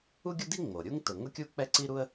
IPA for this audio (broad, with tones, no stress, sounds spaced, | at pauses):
u˥ ɡʲ ʊ˥ d i˥ ŋ͡m o˩ ɾʲ u˥ ŋ t ʊ˩ ŋ ʊ˥ kʲ u˥ k͡p ɛ˥ ǀ i˥ ɾ u˥ ə̯